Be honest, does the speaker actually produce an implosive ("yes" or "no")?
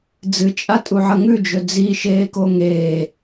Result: no